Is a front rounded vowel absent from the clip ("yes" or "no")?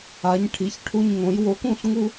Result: yes